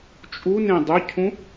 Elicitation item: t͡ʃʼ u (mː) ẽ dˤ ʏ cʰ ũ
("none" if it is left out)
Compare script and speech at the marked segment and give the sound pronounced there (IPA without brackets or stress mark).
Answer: n